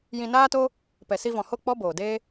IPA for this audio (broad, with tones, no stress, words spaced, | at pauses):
jĩ˧naː˦to˦ | pɛ˨si˧vɔ̃˨ho˦˨ k͡pɔ˦boː˨deː˦